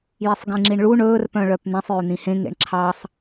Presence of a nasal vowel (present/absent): present